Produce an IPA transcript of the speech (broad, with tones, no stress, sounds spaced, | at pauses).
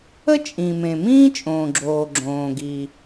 ə˥ t͡ʃʼ ĩ˩ m ẽ˩ m ĩː˥ t͡ʃʼ õː˩ ɡ͡ǁ oː˩ ɡ͡ǁ õː˩ ɡ i˩